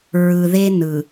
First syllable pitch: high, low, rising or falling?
low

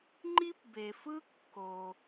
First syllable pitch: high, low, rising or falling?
high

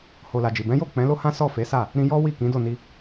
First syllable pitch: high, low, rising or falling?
low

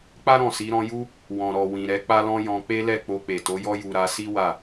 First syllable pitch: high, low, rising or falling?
high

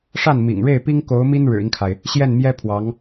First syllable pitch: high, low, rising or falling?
falling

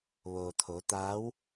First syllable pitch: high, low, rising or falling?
low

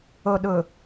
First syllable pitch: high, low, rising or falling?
low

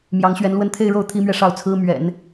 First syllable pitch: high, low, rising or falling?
rising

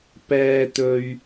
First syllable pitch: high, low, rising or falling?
low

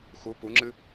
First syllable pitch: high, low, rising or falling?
rising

